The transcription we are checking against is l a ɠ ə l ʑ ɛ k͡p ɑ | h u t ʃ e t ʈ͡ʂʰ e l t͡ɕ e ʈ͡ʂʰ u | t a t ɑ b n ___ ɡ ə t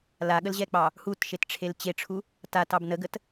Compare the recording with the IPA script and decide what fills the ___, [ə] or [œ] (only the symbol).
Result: ə